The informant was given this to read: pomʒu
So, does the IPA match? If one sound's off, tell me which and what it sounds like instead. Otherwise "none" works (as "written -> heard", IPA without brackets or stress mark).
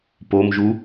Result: none